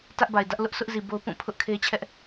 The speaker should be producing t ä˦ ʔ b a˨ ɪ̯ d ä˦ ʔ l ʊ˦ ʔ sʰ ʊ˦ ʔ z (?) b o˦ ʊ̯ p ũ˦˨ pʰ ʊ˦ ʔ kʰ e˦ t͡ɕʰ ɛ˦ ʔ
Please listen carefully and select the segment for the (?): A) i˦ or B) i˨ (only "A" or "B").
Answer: B